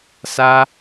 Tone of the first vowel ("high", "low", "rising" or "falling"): high